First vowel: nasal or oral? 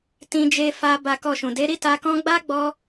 nasal